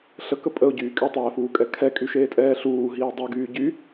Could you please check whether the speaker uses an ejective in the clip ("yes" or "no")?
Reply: yes